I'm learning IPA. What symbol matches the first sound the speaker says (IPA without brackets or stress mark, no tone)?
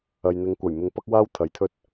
ɐ